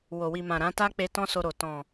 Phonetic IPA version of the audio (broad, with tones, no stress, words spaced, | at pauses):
wo˨wi˨mã˨ ɾã˨˦ta˦k͡pe˧ tɔ̃˦so˧ɾo˨ tɔ̃˨